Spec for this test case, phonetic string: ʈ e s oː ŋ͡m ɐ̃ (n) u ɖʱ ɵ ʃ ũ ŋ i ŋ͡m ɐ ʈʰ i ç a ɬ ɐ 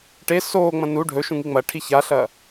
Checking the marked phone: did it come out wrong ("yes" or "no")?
no